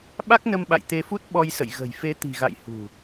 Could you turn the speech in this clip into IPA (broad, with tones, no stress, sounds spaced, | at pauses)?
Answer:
ɓ a˦˥ k̚ n ə˧ m ɓ a̰˧˨ j t̪ e˧ f u˦˥ t̚ ɓ ɔ˧ j s ə̰˧˨ j ɣ ə̤˨˩ j f e˨˦ t̪ i̤˨˩ ɣ a̰˧˨ j h ṳ˨˩